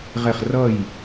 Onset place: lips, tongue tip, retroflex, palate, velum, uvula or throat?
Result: uvula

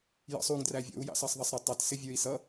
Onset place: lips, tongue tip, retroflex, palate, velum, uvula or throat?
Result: palate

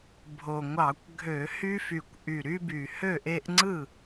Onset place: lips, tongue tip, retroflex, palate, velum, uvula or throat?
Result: lips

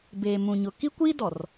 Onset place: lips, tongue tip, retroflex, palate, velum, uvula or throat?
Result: lips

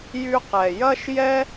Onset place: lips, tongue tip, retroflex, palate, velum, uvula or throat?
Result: palate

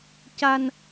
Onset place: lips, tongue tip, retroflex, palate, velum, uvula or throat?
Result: palate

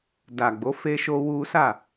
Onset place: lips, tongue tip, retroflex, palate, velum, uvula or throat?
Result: tongue tip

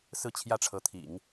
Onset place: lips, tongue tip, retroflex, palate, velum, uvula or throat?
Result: tongue tip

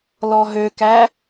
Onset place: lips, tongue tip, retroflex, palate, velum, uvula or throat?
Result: tongue tip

